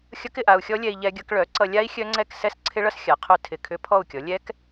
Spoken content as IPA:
xʲ ʌ˦˥ k ɪ˥˨ ʔ a˧ u̯ xʲ ɔ˦˥ lʲ ɛ˧ i̯ ʎ ɛ˧ ɡʲ ʌ˧ k ɭ œ˩˥ ǀ ʌ˧ lʲ a˦˥ i̯ xʲ œ˦˥ ŋ͡ǀ ɛ˥˨ k s ɛ˦˥ s ǀʰ ɪ˦˥ ɭ ʌ˦˥ s xʲ a˩˥ qʰ œ˦˥ tʰ ɪ˧˩ kʰ ʏ˦˥ pʰ ɔ˥˨ u̯ kʲ ɔ˩˥ lʲ ɛ˦˥ k

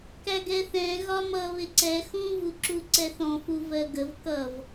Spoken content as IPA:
k æ ɡ ɛ θ ɛ̃ ɣ ɒ m ʌ β ɪ ǀ ɛ x ũ v u ǁ u ǀ ɛ θ ɔ̃ f u v ɜ ɡ ə v k ʌ v

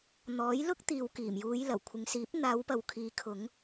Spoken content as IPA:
n̪ ɔː˨˥ j l ʊ˥ k̚ t̪ iː˨ w k iː˨˩ m j uː˨˧ j l ɐ˨˩ w kʷʰ ɪ˨ ŋ s iː˨˥ p̚ n̪ aː˨˧ w p ɐ˨ w kʰ iː˨˧ kʰ ʊ˨˧ ŋ

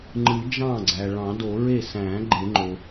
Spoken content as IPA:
ŋ͡ǃ ɯ˨˩˦ d͡ʒ ɑ̃˥˩ ɡ͡ǀ æ˩ ɭ ɑ̃˨˩˦ d o˨˩˦ ɹ e˥˩ s æ̃˨˩˦ ɡ͡ǃ e˨˩˦ ŋ͡ǃ o˩

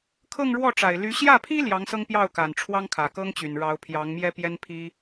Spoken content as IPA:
kʰ ɤ˥˧ ŋ ɻ w ɔ˥˩ ʈ͡ʂ a˨˩ ɪ̯ l y˧˥ ɕ j ä˥˩ pʰ i˥ l j ɑ˧˥ ŋ s ɤ˥ ŋ p j ɑ˥˩ ʊ̯ k a˨˩ n ʈ͡ʂʰ w ɑ˥ ŋ kʰ ä˨˩ k ɤ˥ ŋ t͡ɕ y˨˩ n ɻ ɑ˧˥ ʊ̯ pʰ j ɑ˧˥ ŋ m j ɛ˥ p j ɛ˥ n pʰ i˥

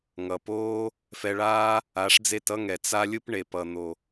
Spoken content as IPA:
ŋ ʌ˨ p oː˦ | f ɛ˧ ɭ aː˦ | a˨˦ ʂ d͡z e˦˨ t ʌ˦ ŋ ɛ˨ t͡s a˦ lʲ ɯ˦ p ɳ e˧ p ʌ˧ n̪ o˧

